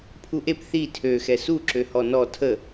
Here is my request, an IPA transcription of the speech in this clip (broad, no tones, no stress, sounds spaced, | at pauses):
pʰ u ʔ e p θ i tʰ ø x ɛ s u ǁ ø h ɔ n ɔ tʰ ə